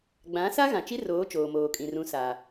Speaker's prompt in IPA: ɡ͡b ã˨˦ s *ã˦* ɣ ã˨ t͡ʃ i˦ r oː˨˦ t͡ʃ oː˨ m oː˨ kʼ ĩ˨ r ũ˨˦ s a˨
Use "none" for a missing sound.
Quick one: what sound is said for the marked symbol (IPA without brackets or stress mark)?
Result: a˦